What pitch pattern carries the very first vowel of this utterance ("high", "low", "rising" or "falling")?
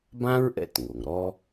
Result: high